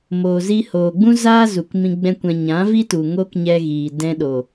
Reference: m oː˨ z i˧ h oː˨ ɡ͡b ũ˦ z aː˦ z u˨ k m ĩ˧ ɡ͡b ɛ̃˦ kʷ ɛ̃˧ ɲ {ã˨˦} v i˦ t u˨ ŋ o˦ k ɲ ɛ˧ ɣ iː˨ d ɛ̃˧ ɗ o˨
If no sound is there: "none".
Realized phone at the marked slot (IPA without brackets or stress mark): ã˨˦